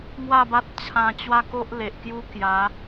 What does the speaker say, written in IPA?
ŋ w a˥˧ b a˦ t̚ t͡ɕʰ ã˧ t͡ɕ w a˦ k o˦ ʔ l e˨ ʔ k j u˦ k j a˨˦

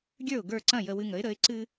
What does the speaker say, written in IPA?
ɡʲ ə˞˥˩ ʊ̯ ɡ ə˞˥˩ ǀ ɐ̃˥˩ j ə˧ w ɨ˧ ŋ ə˩˥ ɪ̯ ɾ ə˩˥ ɪ̯ ǀ ɨ˥

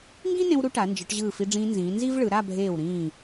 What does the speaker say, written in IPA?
ŋ ɡ ĩ˥ n ẽ˧ w ɾ u˧ ʈ a˩˧ n d͡ʒ ɯ˩˧ ʈ ʑ ɯː˧˩ f i˧ ɖ͡ʐ ĩː˧ n z ĩː˩˧ n z i˥ v ɭ ɯ˩˧ ɾ a˥˧ bʱ eː˧˩ w ɾ ĩː˧˩

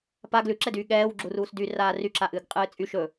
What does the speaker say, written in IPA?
p a ɡ l ʉ ǁ ɛ d yː ɠ ɛː w ɡ͡ǁ u r uː s d y r aː r y ǁ a ʔ ɨː ɡ qʼ ɨː t͡sʼ y ʃ ɵ

